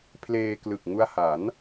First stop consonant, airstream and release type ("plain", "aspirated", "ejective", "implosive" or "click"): aspirated